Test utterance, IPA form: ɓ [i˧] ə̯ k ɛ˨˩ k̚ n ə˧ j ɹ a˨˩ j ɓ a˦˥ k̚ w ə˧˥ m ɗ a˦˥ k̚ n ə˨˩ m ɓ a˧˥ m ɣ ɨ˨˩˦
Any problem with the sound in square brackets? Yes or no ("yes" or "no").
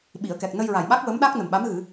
yes